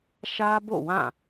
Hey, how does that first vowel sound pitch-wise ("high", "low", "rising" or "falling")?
high